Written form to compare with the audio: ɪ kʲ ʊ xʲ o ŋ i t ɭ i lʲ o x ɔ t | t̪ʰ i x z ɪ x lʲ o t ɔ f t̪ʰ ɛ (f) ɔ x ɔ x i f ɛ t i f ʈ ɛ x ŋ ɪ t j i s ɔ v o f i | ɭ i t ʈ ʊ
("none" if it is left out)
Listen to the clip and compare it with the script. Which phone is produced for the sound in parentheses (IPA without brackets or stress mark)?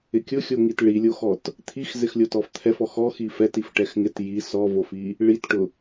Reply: f